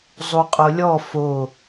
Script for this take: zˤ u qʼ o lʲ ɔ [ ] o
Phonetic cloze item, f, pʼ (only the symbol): f